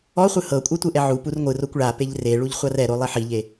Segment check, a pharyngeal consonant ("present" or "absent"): present